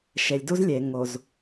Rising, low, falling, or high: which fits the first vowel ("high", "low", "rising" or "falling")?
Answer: low